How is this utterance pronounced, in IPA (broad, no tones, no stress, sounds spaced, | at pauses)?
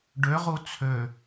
ɖ ø ʁ u t͡sʰ ø